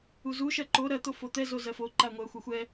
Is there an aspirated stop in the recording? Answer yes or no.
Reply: no